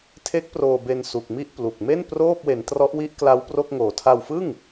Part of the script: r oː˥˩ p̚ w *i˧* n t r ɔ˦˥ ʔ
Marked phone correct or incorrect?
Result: incorrect: e˧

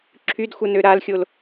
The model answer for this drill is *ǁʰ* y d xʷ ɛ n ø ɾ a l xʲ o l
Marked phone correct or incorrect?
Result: correct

